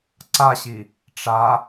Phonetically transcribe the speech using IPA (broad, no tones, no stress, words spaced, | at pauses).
ǀaɕi | ʈ͡ʂa